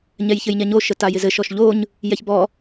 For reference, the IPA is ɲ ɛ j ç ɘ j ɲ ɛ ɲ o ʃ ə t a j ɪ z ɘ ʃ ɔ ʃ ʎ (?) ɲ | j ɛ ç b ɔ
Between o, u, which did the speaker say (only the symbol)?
o